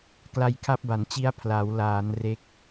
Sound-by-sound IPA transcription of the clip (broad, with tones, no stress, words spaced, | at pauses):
kla˧jkʰa˦˥p̚ba˩˦nt͡ɕi˦˥a̯ pʰla˩˦wlaː˩˦n re˦˥k̚